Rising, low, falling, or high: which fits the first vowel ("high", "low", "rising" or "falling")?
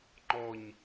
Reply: low